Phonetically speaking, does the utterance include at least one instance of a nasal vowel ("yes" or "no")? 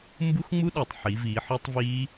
no